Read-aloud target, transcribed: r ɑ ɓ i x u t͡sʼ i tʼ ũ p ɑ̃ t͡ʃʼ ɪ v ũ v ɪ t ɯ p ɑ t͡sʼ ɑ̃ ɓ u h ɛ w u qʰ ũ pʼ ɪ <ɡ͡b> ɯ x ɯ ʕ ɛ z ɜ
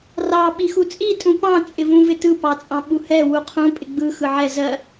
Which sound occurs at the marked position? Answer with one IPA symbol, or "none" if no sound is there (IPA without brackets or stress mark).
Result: ɡ͡b